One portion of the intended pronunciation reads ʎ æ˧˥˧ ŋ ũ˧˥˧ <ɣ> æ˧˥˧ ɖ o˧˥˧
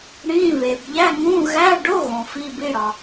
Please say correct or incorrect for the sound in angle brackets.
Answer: correct